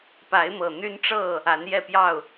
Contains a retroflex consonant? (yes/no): yes